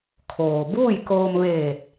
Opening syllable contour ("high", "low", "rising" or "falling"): low